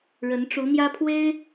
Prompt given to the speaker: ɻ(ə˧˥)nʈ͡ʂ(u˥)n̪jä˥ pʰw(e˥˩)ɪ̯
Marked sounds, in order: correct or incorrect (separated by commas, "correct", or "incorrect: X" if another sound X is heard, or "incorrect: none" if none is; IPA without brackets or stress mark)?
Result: correct, incorrect: u˧˥, incorrect: e˥